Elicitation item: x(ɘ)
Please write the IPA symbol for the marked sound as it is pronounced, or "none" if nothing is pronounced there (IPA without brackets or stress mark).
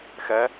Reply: ɛ